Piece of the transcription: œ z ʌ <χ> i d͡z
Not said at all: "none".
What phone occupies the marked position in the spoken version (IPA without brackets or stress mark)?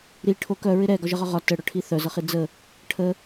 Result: χ